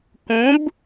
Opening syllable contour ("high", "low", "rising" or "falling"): rising